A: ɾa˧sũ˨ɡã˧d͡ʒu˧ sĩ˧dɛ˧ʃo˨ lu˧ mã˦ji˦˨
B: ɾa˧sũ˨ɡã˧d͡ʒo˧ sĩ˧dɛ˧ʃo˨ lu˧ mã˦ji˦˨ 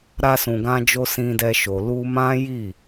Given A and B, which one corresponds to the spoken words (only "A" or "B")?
B